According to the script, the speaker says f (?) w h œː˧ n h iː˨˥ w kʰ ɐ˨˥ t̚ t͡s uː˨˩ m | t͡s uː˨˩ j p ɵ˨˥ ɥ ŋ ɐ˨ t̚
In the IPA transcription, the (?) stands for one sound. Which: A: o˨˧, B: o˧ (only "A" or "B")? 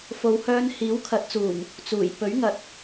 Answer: A